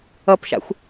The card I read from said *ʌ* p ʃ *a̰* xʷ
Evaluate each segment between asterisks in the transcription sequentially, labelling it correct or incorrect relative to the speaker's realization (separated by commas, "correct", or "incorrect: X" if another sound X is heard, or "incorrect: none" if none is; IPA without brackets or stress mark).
correct, correct